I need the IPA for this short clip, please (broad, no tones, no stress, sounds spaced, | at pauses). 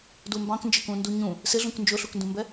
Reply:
d u m b ɑ̃ k n d͡ʒ ɪ k ũ n d u ɲ ũ | s ɪ ɮ ũ k n d͡ʒ ʊ ɬ u k n d ũ m b ɛ